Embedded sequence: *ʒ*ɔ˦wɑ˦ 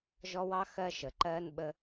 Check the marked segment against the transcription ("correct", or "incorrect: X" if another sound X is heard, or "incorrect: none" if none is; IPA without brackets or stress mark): correct